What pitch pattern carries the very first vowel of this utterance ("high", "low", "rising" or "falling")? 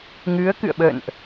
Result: rising